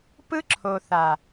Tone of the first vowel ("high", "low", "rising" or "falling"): high